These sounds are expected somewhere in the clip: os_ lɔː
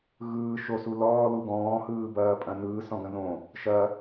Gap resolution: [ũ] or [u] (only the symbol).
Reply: u